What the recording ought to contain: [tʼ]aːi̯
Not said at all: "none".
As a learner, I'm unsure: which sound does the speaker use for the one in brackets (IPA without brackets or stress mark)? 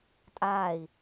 tʼ